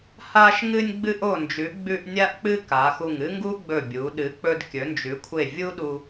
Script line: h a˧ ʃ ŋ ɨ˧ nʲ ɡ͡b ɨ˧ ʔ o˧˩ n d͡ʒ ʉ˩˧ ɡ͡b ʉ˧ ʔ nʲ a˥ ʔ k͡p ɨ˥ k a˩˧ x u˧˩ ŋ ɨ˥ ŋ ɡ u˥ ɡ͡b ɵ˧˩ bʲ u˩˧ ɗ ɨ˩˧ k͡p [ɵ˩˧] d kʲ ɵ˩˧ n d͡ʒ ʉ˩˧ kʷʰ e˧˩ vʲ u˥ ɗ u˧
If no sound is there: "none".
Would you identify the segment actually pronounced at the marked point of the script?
ɵ˧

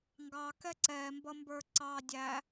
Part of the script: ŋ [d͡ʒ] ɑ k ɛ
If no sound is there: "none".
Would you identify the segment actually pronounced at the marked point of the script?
ɡ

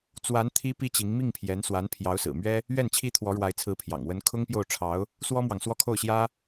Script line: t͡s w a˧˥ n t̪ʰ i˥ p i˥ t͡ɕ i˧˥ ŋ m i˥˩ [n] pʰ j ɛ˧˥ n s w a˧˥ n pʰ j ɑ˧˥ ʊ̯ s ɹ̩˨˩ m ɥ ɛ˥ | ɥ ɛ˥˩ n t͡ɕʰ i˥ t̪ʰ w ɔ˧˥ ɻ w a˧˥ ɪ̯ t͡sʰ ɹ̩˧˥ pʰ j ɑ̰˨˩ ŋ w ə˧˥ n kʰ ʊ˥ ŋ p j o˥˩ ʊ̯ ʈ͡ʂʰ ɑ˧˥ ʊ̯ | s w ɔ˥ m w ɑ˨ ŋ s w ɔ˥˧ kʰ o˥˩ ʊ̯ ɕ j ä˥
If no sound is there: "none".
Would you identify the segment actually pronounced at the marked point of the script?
ŋ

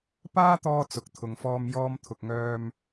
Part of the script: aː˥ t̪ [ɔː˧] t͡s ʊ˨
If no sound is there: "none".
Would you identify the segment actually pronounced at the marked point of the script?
ɔː˧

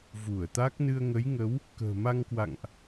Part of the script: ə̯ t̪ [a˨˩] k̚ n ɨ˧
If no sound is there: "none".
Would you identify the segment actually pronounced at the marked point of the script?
a˦˥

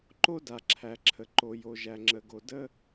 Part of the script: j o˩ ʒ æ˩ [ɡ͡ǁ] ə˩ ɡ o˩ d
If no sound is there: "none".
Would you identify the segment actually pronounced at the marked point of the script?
ŋ͡ǁ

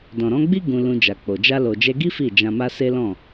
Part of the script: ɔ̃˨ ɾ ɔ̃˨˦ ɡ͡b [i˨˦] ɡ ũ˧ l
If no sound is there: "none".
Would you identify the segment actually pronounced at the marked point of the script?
i˦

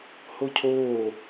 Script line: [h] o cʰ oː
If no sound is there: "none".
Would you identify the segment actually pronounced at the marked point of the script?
h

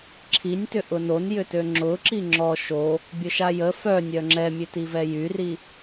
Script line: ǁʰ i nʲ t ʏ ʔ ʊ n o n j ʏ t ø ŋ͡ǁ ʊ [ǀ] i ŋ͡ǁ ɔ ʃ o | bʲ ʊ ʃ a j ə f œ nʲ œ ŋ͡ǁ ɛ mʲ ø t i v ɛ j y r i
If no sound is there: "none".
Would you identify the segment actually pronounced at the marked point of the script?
ǁ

